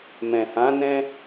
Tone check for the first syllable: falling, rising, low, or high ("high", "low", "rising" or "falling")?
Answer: low